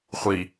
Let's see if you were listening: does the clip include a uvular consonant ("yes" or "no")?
yes